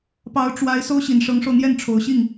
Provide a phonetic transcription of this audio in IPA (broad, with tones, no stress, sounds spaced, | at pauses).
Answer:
p ɑ˧˥ ʊ̯ ʈ͡ʂ w a˧˥ ɪ̯ s o˥ ʊ̯ ɕ i˨˩ n ʂ ɤ˧˥ ŋ ʂ o˧ ʊ̯ n̪ j ɛ˥˩ n ʈ͡ʂʰ o˨˩ ʊ̯ ɕ i˥˩ ŋ